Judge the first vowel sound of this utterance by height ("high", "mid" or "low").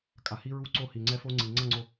low